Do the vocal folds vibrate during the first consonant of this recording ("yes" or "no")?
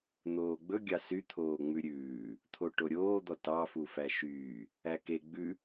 yes